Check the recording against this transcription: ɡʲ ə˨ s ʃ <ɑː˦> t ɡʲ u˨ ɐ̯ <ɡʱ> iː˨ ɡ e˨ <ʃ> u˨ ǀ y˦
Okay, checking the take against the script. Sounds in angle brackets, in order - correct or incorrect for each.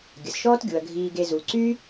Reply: incorrect: ɔː˦, correct, incorrect: z

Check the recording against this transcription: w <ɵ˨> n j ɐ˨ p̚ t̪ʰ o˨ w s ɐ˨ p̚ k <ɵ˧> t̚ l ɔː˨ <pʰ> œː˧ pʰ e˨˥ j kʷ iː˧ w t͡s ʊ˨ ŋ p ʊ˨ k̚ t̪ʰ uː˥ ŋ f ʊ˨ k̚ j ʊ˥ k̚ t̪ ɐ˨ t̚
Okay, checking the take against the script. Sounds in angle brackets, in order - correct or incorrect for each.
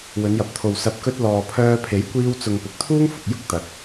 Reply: incorrect: ɵ˨˧, correct, correct

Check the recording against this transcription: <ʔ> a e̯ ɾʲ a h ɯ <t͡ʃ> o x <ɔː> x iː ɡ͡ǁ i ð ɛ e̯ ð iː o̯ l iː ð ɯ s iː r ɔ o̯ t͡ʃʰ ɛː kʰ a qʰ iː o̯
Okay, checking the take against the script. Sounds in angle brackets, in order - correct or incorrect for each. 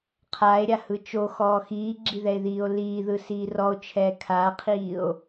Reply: incorrect: qʰ, correct, correct

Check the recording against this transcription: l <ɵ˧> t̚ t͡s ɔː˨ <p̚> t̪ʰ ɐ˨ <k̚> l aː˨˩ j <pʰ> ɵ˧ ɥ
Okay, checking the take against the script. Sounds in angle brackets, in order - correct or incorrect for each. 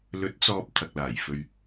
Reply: incorrect: ɵ˨˥, correct, correct, incorrect: f

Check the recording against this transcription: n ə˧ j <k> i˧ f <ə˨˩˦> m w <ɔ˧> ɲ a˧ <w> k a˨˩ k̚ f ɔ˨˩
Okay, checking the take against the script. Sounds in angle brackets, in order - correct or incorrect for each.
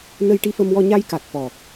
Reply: incorrect: ʈ, incorrect: ə˧, correct, incorrect: j

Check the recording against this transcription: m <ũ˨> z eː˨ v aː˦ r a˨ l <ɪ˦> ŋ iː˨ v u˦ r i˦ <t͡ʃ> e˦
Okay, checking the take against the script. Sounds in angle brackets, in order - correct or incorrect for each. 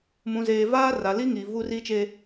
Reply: correct, incorrect: i˦, correct

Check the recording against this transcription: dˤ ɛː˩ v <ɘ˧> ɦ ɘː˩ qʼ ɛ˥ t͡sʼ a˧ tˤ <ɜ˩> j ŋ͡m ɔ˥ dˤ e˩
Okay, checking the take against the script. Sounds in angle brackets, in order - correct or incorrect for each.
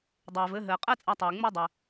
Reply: correct, incorrect: ɛ˩

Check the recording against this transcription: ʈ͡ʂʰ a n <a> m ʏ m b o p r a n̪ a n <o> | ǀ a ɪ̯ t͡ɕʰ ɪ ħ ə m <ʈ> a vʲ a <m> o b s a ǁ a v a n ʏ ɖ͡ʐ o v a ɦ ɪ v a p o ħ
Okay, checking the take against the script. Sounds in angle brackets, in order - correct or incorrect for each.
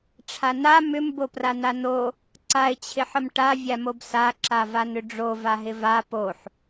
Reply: correct, correct, correct, correct

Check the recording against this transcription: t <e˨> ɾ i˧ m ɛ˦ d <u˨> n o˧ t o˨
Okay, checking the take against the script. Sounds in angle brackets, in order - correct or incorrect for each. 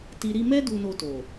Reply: incorrect: i˨, incorrect: u˧

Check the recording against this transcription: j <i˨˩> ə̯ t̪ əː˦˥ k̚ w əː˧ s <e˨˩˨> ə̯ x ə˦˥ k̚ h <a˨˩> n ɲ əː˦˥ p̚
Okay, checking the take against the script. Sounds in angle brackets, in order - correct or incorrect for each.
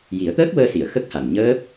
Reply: incorrect: i˨˩˦, incorrect: i˨˩˨, correct

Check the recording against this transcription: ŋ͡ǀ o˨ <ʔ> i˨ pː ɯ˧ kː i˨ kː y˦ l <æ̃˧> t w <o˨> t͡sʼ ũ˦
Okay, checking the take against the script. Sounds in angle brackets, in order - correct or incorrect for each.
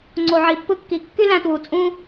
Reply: incorrect: ʕ, correct, incorrect: u˨

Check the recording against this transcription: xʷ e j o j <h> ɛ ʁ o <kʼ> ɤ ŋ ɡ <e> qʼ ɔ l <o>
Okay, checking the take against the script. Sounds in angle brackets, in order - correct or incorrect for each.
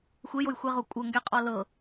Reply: incorrect: xʷ, incorrect: kʷʼ, incorrect: ɛ, incorrect: ɤ

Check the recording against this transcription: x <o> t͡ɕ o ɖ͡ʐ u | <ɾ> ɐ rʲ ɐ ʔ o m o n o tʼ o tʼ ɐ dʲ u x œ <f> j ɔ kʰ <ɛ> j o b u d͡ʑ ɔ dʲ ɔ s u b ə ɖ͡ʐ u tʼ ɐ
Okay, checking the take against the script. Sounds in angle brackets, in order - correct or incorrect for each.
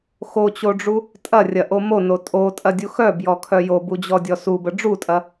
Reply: correct, incorrect: tʼ, incorrect: b, incorrect: œ

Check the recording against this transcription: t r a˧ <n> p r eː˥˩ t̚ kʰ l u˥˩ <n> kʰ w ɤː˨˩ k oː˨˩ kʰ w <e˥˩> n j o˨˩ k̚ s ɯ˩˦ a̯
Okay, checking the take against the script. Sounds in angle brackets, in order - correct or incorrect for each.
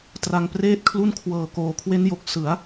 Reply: incorrect: ŋ, correct, incorrect: e˦˥

